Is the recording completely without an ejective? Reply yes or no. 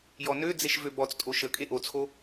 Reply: no